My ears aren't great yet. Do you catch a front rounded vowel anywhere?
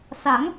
no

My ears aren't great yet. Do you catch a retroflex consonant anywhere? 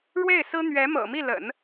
yes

